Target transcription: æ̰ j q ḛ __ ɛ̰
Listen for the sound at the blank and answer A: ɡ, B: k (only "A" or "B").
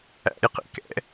B